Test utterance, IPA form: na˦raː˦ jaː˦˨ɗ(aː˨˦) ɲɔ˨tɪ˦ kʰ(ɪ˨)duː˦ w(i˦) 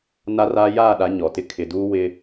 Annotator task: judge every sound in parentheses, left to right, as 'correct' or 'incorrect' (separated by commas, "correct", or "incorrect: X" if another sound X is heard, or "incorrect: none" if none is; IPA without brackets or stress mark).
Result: incorrect: a˨˦, correct, incorrect: ɪ˦